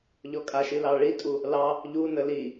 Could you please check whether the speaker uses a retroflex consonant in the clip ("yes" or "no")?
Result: yes